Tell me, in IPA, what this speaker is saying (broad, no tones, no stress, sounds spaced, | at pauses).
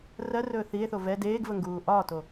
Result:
r ɜ r ɵː θ i e̯ θ o v ɛ d eː ɡ v ə ŋ ɡ uː ʔ ɒ t o